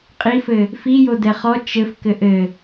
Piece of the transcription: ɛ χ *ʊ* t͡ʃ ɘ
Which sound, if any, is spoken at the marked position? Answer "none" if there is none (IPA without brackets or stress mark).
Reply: ɔ